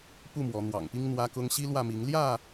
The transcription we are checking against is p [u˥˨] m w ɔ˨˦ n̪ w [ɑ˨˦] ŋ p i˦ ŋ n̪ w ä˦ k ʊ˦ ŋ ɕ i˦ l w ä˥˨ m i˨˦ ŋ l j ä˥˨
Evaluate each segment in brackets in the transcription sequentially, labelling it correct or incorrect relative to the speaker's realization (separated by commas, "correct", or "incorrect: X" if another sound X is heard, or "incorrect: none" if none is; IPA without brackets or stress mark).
correct, incorrect: ɑ̰˨˩